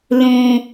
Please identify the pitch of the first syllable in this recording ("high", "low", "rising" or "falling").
high